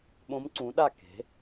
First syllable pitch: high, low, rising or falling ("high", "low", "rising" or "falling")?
rising